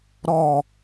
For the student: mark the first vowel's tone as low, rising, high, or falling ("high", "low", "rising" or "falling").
falling